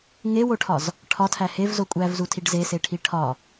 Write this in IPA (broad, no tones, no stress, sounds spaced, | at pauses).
ŋ e w o ʈʰ ɒ z | ʈʰ ɒ tʰ æ h e v z o kʷʼ æ v z u tʰ i ɖ z e s e ʈʰ i ʈʰ ɒ